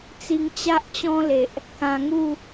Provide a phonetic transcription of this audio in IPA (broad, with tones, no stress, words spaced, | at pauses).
t͡si˧ŋt͡ɕa˦ʔt͡ɕɔ̃˦le˨ʔ | kã˧ŋu˥˧